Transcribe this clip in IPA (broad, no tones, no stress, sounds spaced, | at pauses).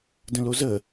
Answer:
d ə̃ l o z ə